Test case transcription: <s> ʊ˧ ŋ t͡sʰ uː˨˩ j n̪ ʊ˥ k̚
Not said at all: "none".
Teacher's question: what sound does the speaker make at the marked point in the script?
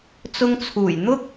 t͡s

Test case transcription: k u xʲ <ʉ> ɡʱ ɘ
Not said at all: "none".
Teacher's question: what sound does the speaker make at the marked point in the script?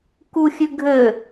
ʉ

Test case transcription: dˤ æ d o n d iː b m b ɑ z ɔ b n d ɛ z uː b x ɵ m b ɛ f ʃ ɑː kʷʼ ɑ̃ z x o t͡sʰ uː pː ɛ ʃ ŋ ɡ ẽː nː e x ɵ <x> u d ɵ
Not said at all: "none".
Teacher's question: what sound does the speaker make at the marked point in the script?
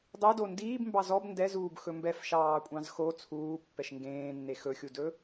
xʲ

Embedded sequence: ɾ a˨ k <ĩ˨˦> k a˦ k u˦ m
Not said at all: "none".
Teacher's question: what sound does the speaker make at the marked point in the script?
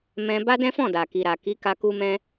i˨˦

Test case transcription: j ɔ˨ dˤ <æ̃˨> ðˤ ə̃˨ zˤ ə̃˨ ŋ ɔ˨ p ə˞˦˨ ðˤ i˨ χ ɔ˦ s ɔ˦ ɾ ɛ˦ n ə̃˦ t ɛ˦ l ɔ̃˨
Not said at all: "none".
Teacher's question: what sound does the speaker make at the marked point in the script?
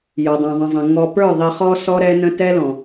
æ̃˨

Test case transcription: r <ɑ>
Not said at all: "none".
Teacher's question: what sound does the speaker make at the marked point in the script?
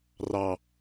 ɑ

